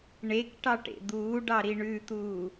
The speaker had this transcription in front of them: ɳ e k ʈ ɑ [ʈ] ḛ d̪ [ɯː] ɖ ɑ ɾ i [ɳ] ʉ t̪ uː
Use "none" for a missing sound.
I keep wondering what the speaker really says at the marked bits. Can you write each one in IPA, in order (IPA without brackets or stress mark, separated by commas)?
ʈ, uː, ɳ